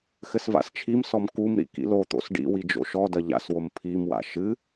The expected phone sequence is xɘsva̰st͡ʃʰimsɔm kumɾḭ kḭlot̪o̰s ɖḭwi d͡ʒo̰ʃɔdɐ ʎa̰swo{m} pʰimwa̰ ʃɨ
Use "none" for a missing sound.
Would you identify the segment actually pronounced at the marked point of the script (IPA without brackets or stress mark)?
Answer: m